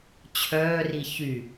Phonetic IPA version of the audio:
t͡ɕʰ œː r i ç y

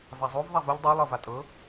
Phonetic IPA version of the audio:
v a zˤ o v ðˤ a v u ʎ dˤ a lˠ ɤ v a tʼ ɤ

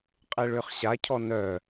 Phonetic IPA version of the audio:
qʼ e ɭ ʏː χ ɕ a cʰ ɔ n œ

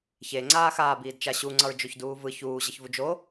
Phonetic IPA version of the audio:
ç e ŋ͡ǀ aː x aː b iː d t͡ʃ a ɕ u ŋ͡ǀ ʌ ɹ d͡ʒ o ç d uː v ɯ ç uː ʑ ʌ ç v u d͡ʒ o

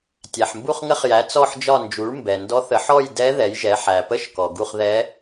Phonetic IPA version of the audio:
tʲ æ˩ ħ m b u˦˨ χ ŋ ə˧˥ χ j æ˩˥ t͡s ɔ˦˨ ħ d͡ʒ ɒ˦˨ n d͡ʒ u˩˥ ɭ m b ɛ˩ n d ɔ˧˥ θ ə˩˥ ħ ɔ˦˨ j d ɛ˧˥ ð ɛ˩˥ j ʒ ɛ˩˥ ħ æ˩ p ə˦˨ ʃ k ɔ˩ ɡ u˦˨ χ ð ɛ˧˥

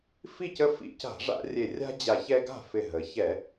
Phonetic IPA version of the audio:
f i˥˩ c ə˦ f ḭ˧˩˧ c a̤˧˩˧ ʐ a̰˧˩˧ rʲ e˧˩ rʲ a̤˦ d͡ʑ a˧˩ ç ɛ˦ ɡ a̤˥˩ f ɪ˧˩ ɦ ə˩˧ ç ɛ˧˩˧

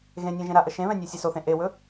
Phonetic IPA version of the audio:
ɣ ẽ nʲ ɛ̃ ʒ ẽ ɾ a ʔ ə ʃ ẽ β ɛ̃ nʲ a sʲ e s o θ ẽ ʔ e w ɵ

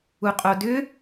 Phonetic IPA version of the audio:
u qʼ o d ʏ

